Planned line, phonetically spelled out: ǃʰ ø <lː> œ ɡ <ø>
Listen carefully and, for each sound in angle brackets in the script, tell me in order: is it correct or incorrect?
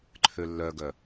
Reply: correct, incorrect: œ

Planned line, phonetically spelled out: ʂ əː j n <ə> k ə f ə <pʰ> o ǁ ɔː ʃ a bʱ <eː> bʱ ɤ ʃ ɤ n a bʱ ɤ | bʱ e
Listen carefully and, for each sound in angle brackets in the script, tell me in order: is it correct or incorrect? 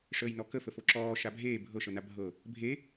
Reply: incorrect: ɔ, incorrect: f, correct

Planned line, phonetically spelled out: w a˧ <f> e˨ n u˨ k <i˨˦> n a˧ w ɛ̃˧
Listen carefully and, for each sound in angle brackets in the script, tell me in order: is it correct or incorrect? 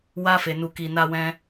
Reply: correct, incorrect: i˨

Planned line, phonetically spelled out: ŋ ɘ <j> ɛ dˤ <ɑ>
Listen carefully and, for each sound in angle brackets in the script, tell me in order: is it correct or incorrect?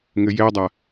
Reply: correct, incorrect: a

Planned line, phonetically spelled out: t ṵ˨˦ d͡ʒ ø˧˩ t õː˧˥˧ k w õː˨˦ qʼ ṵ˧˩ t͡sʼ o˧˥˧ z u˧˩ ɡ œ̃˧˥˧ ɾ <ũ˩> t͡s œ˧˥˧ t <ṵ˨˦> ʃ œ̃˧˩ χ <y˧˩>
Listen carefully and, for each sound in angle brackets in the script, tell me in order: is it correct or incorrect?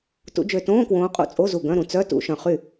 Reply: correct, correct, incorrect: y˥˩

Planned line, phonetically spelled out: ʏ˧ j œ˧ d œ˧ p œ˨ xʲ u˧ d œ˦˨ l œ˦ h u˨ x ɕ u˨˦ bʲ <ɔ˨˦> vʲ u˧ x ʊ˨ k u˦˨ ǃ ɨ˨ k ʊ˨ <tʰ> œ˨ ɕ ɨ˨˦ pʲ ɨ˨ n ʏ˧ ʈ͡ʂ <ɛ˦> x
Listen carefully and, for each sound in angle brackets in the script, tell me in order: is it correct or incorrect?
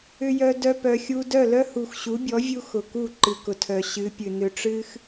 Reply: correct, correct, incorrect: ɨ˦

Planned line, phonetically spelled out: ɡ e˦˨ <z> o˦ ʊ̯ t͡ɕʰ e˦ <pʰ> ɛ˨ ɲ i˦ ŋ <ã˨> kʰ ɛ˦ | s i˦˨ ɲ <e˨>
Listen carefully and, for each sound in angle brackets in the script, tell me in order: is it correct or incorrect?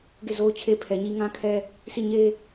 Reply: correct, correct, incorrect: ã˦, incorrect: e˦

